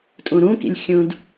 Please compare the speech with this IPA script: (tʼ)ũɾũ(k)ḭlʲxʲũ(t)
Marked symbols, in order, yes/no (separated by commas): yes, yes, no